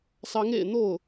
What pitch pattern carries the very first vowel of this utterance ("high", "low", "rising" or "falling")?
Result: rising